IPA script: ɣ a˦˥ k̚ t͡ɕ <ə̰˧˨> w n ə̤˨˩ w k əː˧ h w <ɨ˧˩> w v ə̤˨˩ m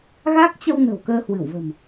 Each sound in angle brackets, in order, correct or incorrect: incorrect: ə˧, correct

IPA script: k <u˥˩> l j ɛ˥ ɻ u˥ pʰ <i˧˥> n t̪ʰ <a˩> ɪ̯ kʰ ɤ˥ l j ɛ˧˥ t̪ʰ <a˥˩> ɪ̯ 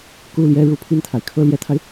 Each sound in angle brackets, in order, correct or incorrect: correct, incorrect: i˥˩, correct, incorrect: a˧

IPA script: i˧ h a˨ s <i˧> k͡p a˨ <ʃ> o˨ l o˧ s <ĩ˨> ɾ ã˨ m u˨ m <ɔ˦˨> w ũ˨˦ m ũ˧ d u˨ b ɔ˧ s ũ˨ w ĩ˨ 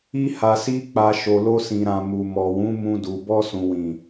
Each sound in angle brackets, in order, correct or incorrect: correct, correct, correct, incorrect: ɔ˨

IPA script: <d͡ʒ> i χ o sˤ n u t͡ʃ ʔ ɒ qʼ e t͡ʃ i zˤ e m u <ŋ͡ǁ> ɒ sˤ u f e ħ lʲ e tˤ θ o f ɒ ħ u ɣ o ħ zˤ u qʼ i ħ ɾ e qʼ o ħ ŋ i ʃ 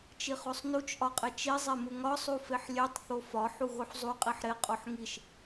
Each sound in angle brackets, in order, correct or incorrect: incorrect: t͡ʃ, incorrect: ŋ

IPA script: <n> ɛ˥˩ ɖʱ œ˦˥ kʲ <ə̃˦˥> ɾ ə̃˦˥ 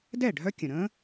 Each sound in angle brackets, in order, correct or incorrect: incorrect: d, incorrect: ə̃˩

